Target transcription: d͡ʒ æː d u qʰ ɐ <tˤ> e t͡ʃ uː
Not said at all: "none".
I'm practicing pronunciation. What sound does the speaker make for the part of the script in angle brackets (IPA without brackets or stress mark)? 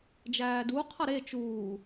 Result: ɾ